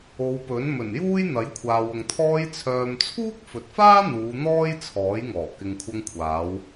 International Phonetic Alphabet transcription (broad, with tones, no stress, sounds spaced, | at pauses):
o˨˧ w p ɵ˨˥ n m ɵ˨˩ n j uː˥ j n̪ ɐ˨˥ j kʷʰ aː˨ w ʊ˨ ŋ t̪ʰ ɔː˧ j t͡sʰ œː˨ m t͡sʰ uː˥ k̚ f ɵ˨ t̚ f aː˥ n̪ uː˨˧ n̪ ɔː˥ j t͡sʰ ɔː˨˥ j ŋ ɔː˨˩ k ɪ˨ ŋ kʷʰ ɐ˧ ŋ kʷʰ aː˨˧ w